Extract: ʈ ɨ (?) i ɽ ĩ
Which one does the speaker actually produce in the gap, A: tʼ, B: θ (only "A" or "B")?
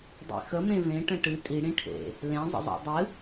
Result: A